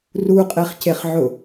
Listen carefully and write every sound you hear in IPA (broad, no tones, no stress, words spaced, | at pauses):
ruqʼeχceχʕʊ